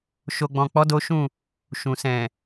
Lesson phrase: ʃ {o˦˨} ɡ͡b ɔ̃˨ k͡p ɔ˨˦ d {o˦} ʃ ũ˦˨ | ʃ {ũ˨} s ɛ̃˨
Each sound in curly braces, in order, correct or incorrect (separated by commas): incorrect, correct, correct